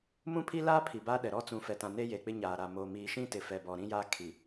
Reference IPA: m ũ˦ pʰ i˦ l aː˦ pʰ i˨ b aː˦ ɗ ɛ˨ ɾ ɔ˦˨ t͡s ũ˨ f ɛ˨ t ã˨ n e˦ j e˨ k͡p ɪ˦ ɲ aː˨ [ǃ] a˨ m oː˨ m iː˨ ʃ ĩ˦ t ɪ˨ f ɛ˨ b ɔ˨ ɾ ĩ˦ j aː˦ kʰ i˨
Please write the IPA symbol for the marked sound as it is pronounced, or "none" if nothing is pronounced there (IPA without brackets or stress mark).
ɾ